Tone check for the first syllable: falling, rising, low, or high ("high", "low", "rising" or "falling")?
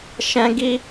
high